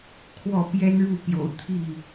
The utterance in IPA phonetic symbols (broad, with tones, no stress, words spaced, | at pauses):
kʰwɔ˥˨ pjɛ˦nɻu˥˨ pjo̰˨˩ʊ̯ t̪ʰi˥˨